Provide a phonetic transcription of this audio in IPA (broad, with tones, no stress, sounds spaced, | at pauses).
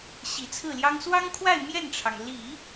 ɕ i˨˩ t͡sʰ ɹ̩˥˩ l j ɑ˥ ŋ s w ɑ˥ ŋ kʰ w a˥˧ ɪ̯ m j ɛ˥˩ n ʈ͡ʂʰ ɑ˩ ŋ l i˨˩˦